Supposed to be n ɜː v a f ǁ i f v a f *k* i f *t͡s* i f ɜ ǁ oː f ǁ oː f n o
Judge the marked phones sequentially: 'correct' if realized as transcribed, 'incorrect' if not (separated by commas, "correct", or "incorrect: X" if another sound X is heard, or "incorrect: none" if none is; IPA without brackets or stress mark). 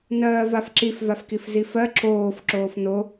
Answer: correct, incorrect: z